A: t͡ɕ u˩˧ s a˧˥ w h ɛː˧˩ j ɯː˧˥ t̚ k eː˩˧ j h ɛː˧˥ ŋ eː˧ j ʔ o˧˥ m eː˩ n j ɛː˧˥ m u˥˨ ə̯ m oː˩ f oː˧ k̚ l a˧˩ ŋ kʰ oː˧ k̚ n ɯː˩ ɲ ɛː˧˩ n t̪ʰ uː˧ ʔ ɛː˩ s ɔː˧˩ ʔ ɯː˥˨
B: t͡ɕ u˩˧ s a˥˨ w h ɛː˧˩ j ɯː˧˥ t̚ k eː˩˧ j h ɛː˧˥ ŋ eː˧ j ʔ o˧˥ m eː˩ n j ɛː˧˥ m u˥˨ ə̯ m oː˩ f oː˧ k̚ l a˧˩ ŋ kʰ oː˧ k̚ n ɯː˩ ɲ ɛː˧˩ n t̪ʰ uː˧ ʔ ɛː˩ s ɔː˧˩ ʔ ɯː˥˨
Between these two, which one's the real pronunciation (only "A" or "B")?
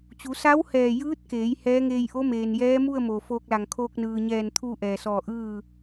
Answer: A